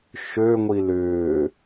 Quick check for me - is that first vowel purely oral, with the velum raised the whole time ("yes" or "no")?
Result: yes